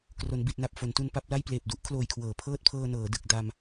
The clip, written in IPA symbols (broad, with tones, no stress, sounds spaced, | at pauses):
k r o˩˦ n b i˨˩ t̚ n a˨˩ p̚ f o˩˦ n t u˧ n p a˦˥ p̚ l a˥˩ j p l eː˨˩ p̚ d u˦˥ ʔ kʰ l oː˨˩ j kʰ w ɤː˩˦ pʰ ɤː˥˩ t̚ pʰ ɤː˧ n ɤː˩˦ d ɯ˨˩ k̚ d a˧ m